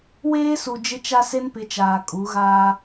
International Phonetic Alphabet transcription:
w eː˦ s u˨ d͡ʒ ɪ˦ t͡ʃ a˦ s e˦ n p ɪ˨˦ t͡ʃ aː˨ kʼ u˨˦ ɣ aː˦

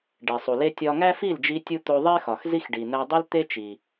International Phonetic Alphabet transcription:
ɖ e˨ sˤ u˨ l e˦ tʲ ɒ˧ ŋ æ˦ f i˦˨ l d͡ʒ i˧ tʲ u˧ t̪ o˧ ðˤ e˦ x ɒ˨ x z i˦ x ɖ i˨ n̪ æ˧ dˤ i˦ l t̪ e˦ t͡ʃ i˨

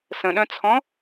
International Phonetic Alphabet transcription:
s ə̃ ɗ œ̃ t͡sʰ ɔ̃

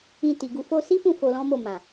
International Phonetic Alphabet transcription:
ĩ˧ t i˨ ɡ u˧ f o˧ s i˦ f ũ˦˨ f o˧ l ɔ̃˦ m o˦˨ m ã˨

